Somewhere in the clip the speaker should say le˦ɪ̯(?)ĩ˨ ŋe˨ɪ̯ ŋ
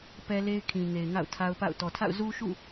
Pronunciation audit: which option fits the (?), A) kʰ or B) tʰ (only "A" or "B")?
A